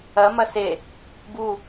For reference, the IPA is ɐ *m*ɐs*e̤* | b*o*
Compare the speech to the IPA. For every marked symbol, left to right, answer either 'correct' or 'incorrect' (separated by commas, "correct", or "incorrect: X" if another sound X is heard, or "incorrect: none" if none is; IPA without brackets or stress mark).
correct, incorrect: e, incorrect: u